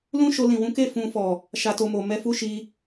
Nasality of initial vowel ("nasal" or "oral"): nasal